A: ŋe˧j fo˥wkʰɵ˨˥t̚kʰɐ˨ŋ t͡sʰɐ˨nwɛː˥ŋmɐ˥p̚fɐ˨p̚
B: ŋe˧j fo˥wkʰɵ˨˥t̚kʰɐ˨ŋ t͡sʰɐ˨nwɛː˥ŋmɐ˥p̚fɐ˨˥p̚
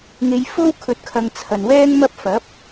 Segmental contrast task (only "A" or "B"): B